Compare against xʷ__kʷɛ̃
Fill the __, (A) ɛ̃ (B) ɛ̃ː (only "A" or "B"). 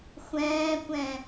B